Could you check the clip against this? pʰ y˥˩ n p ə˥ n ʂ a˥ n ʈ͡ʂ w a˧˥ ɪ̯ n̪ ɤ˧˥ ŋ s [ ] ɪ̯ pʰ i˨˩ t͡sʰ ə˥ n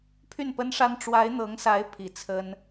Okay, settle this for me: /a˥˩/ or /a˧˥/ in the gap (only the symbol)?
a˧˥